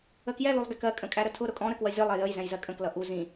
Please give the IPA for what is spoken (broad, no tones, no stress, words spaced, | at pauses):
əkjɛ lulˠɡɛkɜ kʼə̃kʼæɾətʰʊ ɾʊkʼɔ̃ ɾəkwʌzʲɔlˠ ɛjəj zɛ̃jzɜkʼə̃k lʌʔu zĩ